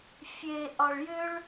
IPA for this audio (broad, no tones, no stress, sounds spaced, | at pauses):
fʲ e ʔ ɒ ɭ j ʏ ɭ